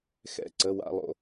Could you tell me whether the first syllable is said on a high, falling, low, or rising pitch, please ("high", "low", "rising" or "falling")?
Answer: falling